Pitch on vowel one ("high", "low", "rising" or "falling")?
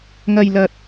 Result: low